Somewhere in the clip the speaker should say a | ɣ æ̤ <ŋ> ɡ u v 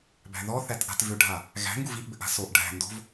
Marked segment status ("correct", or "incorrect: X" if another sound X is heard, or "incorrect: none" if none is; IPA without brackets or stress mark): correct